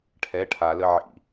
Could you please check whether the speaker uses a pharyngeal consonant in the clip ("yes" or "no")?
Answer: yes